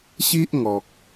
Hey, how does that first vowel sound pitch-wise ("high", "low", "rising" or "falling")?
high